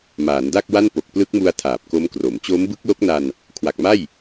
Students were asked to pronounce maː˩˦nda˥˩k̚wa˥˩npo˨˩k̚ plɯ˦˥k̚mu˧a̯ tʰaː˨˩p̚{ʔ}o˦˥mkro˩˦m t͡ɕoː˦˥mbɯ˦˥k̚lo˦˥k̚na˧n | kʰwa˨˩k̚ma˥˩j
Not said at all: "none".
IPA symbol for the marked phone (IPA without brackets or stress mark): k